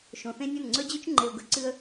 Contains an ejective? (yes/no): no